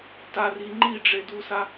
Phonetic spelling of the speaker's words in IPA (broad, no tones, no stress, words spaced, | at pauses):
tari ŋ͡ǃiɖ͡ʐedusa